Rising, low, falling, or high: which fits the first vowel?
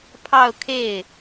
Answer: falling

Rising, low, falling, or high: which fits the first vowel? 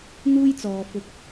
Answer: high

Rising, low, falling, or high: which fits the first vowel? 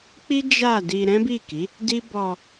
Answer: high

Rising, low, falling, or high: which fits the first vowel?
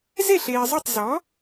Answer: falling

